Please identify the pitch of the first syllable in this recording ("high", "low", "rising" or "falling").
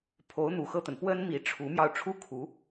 rising